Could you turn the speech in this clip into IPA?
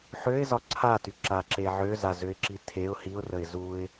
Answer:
ħ ø ɪ̯ z ɒ ǀʰ a t y ǁ a ǁ e ʕ ø z a z ø ɪ̯ ǁ i tʰ e ʊ̯ h i ʊ̯ r ə ɪ̯ z u ɪ̯

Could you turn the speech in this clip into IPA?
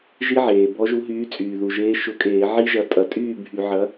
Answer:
ʒ i˦˥ ʕ eː˩ b ɔ˨˥ ʒ u˨˥ ɦ yː˨˥ t͡sʼ yː˩ ð u˩ ʒ eː˨˥ ʃ ʊ˧˩˧ kʼ eː˧˩˧ ʕ i˦˥ ʒ ɐ˨˥ tʼ ɐ˧˩˧ tʼ yː˥˩ bʱ y˧˩˧ ʕ ɐ˨˥

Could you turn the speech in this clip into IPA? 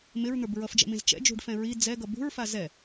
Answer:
m ɪ ɹ n̪ ə˞ b ɹ ʌ f d͡ʒ ɛ̰ m ĩ z t͡ʃ ɛ̰ d͡ʒ ṳ ɖ f ɛ̃ ɹ i d͡z ɛ ɡ ʌ b ṳ ɹ f a z ɛ

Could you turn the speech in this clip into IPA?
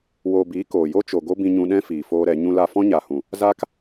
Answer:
w oː˨ b iː˨˦ k oː˨ j o˦ t͡ʃ o˨ ɡ o˦ b ĩ˧ ɲ ũ˧ ɗ ɛ̃˦ f iː˨ f oː˦ ɾ ɛ˨˦ ɲ ũ˧ l a˧ f ɔ̃˦ ɲ a˨ h ũ˨ | z a˦ k

